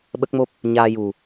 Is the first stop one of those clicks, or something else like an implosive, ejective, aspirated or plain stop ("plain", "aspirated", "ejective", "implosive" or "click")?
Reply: implosive